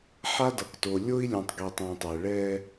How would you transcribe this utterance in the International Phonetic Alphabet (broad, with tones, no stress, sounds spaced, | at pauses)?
ħ a˦ d ʌ˨ k t o˨ lʲ o˦ i̯ lʲ ũ˨ tˤ ɡ i˨ tˤ ũ˨ tˤ ɛ˨ ɭ ɛ˦